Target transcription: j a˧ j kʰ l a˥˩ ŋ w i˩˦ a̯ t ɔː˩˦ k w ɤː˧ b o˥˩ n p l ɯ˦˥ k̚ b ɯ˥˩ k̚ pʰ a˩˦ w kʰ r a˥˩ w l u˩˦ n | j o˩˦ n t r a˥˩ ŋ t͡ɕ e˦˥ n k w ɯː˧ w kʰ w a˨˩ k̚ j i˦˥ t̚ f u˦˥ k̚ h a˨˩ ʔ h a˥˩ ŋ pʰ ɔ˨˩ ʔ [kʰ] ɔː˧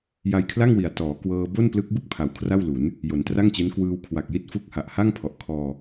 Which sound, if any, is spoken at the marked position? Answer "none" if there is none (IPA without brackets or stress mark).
kʰ